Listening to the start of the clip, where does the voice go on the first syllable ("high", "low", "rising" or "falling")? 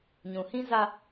low